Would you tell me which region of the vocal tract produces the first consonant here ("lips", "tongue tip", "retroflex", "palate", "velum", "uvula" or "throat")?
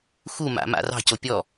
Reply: velum